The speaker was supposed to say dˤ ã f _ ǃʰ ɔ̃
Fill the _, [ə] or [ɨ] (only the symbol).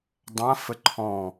ə